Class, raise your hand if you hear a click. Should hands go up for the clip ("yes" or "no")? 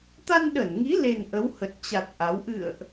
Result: no